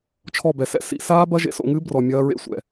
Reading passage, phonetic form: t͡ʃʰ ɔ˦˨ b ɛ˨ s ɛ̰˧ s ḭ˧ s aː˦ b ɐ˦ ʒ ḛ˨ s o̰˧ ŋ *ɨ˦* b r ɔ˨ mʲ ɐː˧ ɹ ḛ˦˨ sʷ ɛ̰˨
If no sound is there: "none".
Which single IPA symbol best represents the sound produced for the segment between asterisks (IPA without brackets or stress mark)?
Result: ɨ˦